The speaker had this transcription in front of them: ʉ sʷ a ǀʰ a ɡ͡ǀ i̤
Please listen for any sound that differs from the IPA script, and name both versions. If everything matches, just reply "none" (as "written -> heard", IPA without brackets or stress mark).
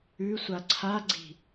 none